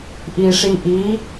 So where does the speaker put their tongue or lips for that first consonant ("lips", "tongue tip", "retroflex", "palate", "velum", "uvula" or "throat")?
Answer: throat